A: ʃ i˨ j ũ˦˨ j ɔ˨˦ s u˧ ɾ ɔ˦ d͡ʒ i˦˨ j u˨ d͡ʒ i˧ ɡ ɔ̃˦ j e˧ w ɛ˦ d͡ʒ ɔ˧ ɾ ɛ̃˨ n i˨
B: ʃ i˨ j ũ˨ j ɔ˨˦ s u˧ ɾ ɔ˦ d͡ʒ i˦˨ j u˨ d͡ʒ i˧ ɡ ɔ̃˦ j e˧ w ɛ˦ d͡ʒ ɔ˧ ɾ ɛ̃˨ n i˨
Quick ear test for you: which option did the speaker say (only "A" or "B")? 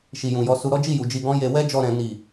B